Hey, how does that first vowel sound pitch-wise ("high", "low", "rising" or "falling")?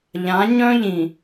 rising